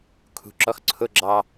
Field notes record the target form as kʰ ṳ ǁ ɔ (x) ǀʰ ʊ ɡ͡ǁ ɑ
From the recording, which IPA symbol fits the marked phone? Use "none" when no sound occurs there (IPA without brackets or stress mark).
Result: x